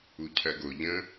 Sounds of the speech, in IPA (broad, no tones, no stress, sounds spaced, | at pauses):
u cʰ ɜ ɡ o ʎ ə̃